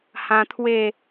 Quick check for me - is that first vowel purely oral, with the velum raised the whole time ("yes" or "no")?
no